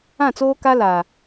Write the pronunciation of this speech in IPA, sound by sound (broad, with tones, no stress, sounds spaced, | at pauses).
ã˦˨ t͡s oː˦ k a˦ l a˨